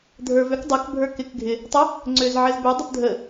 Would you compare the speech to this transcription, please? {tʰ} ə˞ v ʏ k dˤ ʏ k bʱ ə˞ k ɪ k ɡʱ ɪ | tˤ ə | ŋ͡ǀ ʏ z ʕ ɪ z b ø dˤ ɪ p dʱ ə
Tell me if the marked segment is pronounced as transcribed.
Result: no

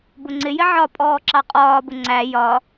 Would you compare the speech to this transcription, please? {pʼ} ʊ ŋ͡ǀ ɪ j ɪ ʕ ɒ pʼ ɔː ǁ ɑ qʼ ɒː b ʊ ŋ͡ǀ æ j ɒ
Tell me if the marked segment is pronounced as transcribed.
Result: no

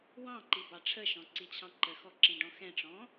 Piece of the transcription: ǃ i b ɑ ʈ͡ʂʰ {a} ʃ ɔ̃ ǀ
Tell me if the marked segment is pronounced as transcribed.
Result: no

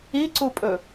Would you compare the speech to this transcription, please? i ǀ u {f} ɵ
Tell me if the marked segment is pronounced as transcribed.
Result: no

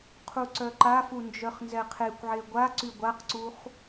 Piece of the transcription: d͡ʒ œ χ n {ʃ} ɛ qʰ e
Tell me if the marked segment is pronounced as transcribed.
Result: no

